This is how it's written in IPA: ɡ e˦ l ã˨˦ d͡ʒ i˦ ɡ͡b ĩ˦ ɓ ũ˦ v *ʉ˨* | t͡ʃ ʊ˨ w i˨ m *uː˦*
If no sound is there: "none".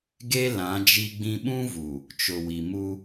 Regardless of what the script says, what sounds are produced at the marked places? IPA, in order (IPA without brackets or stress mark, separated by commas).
u˨, u˦